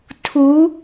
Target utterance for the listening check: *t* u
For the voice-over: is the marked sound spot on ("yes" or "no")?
no